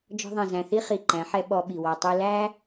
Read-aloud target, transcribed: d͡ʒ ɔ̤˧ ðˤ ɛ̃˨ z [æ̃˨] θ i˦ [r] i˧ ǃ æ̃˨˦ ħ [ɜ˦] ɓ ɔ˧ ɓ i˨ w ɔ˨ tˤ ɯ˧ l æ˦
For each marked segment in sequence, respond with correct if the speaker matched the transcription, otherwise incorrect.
correct, incorrect: χ, incorrect: ɛ˦

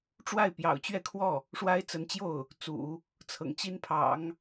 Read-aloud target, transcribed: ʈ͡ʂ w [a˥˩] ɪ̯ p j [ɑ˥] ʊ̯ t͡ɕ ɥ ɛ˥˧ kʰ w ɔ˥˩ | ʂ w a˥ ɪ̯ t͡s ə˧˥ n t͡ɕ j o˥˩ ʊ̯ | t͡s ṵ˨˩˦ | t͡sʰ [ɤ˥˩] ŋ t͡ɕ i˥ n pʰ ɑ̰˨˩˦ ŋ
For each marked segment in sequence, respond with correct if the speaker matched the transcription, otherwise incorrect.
correct, incorrect: ɑ̰˨˩, incorrect: ɤ̰˨˩

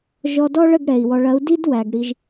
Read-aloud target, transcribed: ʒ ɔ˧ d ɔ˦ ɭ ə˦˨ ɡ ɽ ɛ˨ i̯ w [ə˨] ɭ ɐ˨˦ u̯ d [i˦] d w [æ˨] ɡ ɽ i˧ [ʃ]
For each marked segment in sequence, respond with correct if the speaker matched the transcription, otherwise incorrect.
incorrect: ɔ˨, correct, correct, incorrect: ʒ

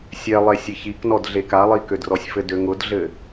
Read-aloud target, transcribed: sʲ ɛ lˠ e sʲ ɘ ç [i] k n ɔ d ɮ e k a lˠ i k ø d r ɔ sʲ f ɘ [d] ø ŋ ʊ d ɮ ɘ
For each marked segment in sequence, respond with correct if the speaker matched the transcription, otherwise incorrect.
correct, correct

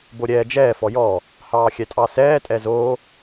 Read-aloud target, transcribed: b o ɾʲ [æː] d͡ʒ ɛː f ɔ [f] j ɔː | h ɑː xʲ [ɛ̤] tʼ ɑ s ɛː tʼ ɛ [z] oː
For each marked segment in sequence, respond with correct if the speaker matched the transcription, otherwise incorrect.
incorrect: ɛː, incorrect: none, incorrect: ɛ, correct

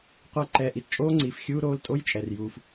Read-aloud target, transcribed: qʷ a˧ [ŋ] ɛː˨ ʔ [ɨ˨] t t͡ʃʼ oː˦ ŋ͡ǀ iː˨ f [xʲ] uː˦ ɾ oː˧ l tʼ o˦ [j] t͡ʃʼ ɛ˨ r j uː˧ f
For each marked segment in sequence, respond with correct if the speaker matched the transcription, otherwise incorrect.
incorrect: ǃ, incorrect: i˨, correct, correct

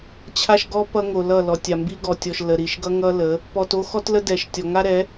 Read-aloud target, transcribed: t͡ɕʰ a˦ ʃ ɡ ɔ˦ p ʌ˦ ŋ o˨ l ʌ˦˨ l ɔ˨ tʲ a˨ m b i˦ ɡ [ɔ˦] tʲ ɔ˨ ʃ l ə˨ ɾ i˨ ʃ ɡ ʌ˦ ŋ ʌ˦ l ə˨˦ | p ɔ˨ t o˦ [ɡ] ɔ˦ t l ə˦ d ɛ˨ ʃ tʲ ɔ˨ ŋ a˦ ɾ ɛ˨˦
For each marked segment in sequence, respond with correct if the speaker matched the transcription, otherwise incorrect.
incorrect: ɔ˨, incorrect: x

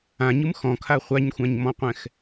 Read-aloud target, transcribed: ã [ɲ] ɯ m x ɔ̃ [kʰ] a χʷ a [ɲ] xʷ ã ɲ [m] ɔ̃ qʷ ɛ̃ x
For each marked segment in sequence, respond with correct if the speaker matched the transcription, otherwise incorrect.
correct, correct, correct, correct

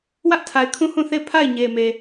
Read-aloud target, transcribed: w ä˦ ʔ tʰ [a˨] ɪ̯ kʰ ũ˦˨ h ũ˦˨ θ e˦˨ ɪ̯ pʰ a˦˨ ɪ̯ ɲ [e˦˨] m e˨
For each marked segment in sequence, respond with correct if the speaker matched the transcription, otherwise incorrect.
correct, incorrect: e˨

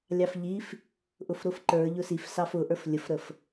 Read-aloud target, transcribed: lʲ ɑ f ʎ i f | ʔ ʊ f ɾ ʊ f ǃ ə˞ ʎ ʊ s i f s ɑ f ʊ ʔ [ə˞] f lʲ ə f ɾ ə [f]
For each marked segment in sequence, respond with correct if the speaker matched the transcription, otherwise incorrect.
correct, correct

